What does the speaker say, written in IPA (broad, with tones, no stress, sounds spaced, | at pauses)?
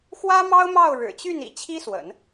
x w ä˥ m ɑ˥ ʊ̯ m ɑ˥˩ ʊ̯ ɻ ɻ̩˨˩ t͡ɕ y˥˩ n ḭ˨˩ t͡ɕʰ i˥ s w ə̰˨˩˦ n